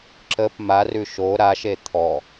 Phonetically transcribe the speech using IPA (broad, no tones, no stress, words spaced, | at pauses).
ǁəp marʉ ʃo ɾaʃe t̪ʰɔ